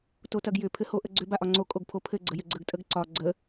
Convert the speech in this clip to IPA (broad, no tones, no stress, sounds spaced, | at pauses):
t o t ɐ ɡ j ʏ pʰ ɘ h o ʔ ə ɡ͡ǀ ʏ b a ʔ ɒ ŋ͡ǀ o kʼ o ɡ pʰ o pʰ ɘ ɡ͡ǀ ə j ʏ ɡ͡ǀ ə ɡ tʼ ə ɡ ǀ ɒ ɡ͡ǀ ə